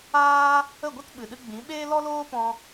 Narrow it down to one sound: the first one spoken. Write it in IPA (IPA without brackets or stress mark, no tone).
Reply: aː